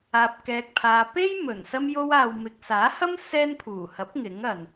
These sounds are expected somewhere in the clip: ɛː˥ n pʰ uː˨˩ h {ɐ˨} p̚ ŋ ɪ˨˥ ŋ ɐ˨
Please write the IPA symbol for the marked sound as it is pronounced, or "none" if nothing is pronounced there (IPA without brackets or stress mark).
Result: ɐ˨˥